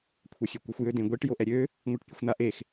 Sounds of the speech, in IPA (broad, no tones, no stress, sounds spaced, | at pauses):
kʷʰ ɛ xʲ ø kʷ ɛ xʷ j ø d ẽ ɡʷ i ʈ j o ʔ ɛ ɾʲ ø | ŋʷ i ʈ pʲ u xʷ n̪ a ʔ e x